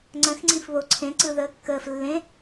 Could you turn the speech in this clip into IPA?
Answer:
ŋ͡ǀ ə̃ x ŋ͡ǀ ĩ f β o ǀʰ ẽ ǀ ɯ ð əː kː əː f lː ẽ

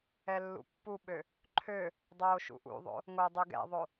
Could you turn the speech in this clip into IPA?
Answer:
ɛ lː ṵ pː u ɓ ø | ǃʰ ø | dˤ oː ʃ ṵ ʔ ṵ ðˤ o̰ | ŋ o dˤ u ɡ ɛ̰ ðˤ o

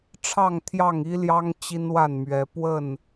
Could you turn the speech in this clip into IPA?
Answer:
ʈ͡ʂʰ ɑ˥˨ ŋ t̪ʰ j ɑ˥˨ ŋ i˦ l j ɑ˦ ŋ t͡ɕ i˦ n w a˥˨ n m ɥ ɛ˨˦ p w ə˥˨ n

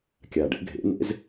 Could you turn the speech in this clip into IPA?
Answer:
kʲ a˨˩ ɖ ḛ˩˥ ɡʱ ḛ˩˥ n ḛ˩˥ z

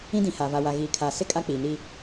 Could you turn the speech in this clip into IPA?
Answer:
ĩ˦ d ĩ˨ h a˨ v a˨ w a˨ ɣ iː˨ kʰ aː˨ s ɪ˦˨ kʼ a˦ k͡p iː˨ n iː˦

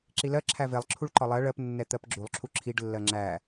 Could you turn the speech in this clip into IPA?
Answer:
ǁ i l ɜ ǁʰ æ v e lˠ ǁʰ u ɭ ǃ ɒ lˠ ɜ ɭ ɜ p nː ɛ t̪ ɜ p ɡ͡ǁ u lˠ ǁʰ u ǁʰ i ɖ lː ɜ ŋ͡ǁ æ

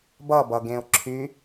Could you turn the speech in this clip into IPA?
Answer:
b ʌ b ʌ ɡ ẽ ʊ̯ ǁʰ y

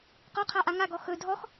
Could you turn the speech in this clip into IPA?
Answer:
q ɔ qʰ a ʔ a ŋ a ɡ ɔ x ɵ dʱ ɔ x

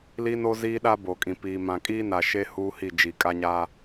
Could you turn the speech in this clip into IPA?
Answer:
l i˦ n o˦ z iː˦ ɗ a˦ b o˨ kʼ ĩ˨ p iː˨ m ã˨ kʼ iː˦ n a˨ ʃ e˦ h uː˦ h i˦˨ d͡ʒ i˨ kʼ a˦ ɲ a˦

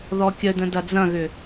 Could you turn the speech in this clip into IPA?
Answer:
ð ɔ kʲ ə d ə̃ d ɐ d͡z ɐ̃ ɣ ʏ

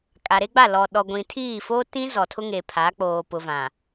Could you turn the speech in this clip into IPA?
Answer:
kʼ a˨ ɾ e˦ ɡ͡b a˦˨ l ɔ˨ ɗ ɔ˨ ɡʷ ĩ˨ tʰ iː˦˨ f oː˦ t ĩ˦ z ɔ˨ tʰ ʊ˦ ŋ e˨ pʰ a˨˦ k͡p oː˨ p ʊ˨ v ã˨

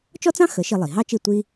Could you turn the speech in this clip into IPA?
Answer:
t͡ʃ ɔ˥ t͡s ɑ̃˥ x ə˩˥ ʃ i˧ lˠ i˩ ɦ ɑ˥ t͡ʃ i˥˩ tʷ i˥

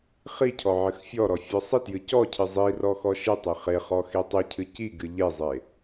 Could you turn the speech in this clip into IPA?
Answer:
χ i cʰ ɔ ʕ ɨ x fʲ ɔ ɾ ɔ fʲ ɔ sˤ i t j ɨ c ɔ cʰ ɨ zˤ i r ɔ x ɔ ʃ ɨ tˤ e χ e χ ɔ x e tˤ ɨ cʰ ɨ c i ɡ ɨ ʎ e zˤ e

